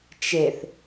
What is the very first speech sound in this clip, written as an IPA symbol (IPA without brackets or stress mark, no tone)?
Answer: t͡ʃ